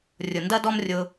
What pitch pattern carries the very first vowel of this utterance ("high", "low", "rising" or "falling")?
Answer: low